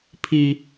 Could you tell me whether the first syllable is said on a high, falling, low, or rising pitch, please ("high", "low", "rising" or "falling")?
high